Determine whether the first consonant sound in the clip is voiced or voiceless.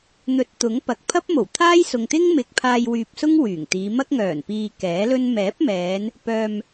voiced